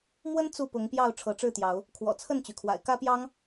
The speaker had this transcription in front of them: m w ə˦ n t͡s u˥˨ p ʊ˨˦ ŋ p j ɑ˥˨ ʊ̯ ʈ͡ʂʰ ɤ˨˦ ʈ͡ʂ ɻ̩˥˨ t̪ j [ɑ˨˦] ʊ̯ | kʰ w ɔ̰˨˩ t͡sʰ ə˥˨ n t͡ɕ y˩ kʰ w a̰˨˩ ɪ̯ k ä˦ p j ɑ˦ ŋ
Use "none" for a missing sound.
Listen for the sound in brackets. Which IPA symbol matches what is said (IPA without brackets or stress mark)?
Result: ɑ˨˦